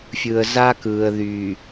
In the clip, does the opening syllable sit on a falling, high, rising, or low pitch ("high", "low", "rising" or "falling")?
low